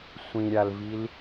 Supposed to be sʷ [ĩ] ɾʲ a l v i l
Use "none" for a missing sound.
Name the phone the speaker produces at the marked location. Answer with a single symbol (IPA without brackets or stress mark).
ĩ